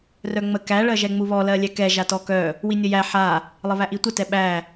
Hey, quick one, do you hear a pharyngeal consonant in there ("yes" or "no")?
yes